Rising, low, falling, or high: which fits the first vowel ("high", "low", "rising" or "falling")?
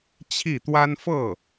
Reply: falling